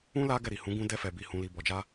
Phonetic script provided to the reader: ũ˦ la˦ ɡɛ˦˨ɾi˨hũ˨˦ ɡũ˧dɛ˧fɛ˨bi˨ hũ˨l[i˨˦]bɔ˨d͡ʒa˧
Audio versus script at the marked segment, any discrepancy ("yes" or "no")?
yes